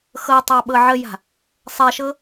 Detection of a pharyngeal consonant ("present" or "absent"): present